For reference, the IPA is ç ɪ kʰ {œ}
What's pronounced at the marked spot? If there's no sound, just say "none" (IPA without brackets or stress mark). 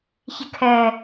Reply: œ